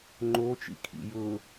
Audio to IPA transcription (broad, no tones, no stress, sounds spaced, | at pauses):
ŋ͡ǃ o t͡ʃ ḭ kʰ ḭ j ʊ